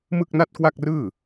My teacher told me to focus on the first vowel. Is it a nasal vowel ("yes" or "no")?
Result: no